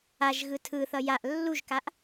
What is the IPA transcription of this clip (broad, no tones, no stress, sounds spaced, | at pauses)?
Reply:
a ʒ ɣ ɯ tʰ ɯ θ ʌ j a ʔ lː u ʒ k a ʔ